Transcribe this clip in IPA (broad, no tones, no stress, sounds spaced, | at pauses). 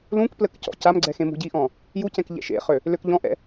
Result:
l ũ k p l ə k c ɔ̰ c a m ɡ͡ǀ ɛ x ẽ m ṳ ɟ i ʔ ɔ̃ | j u c ɛ̃ k ʎ ɛ̰ ʃ ḛ χ ø | l ø k ʎ ɔ̃ ʔ ɛ̰